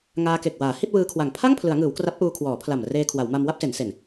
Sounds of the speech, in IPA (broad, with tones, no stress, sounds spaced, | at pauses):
ŋ aː˧ k e˨˩ k̚ w aː˩˦ h i˥˩ t̚ w ɯː˧ kʰ w a˨˩ ŋ pʰ a˥˩ ŋ pʰ l ɯ˩˦ a̯ ŋ ɯː˩˦ w k r a˦˥ p̚ ʔ uː˧ kʰ w ɔː˩˦ pʰ l a˨˩ m r eː˧ kʰ w a˩˦ w m a˧ m w a˥˩ p̚ s e˩˦ n s e˨˩ n